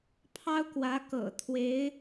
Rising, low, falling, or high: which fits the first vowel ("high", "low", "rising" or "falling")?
high